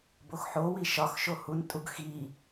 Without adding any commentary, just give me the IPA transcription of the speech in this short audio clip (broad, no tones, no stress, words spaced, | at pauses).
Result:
boxħowi ʃɒxʃo huntʼuɡ xi